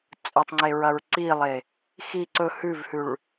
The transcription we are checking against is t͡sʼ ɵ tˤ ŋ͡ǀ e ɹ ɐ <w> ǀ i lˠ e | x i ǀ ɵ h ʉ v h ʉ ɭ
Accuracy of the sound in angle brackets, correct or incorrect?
incorrect